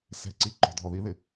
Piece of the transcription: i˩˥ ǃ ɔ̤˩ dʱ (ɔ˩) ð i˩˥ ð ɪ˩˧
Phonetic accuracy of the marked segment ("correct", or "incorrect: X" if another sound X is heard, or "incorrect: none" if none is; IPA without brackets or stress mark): correct